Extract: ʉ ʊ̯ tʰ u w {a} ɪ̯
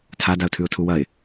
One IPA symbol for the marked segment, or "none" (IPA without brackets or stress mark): ɐ